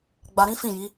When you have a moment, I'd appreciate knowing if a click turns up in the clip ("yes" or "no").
no